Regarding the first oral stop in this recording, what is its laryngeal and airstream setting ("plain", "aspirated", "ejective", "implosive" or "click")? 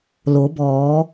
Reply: plain